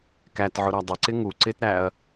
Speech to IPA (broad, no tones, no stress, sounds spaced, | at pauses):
k æ t ʕ ʊ ɾ æ dˤ ʊ ǀ ɪ ŋ u ǀ ɪ t ɾ æ ɐ̯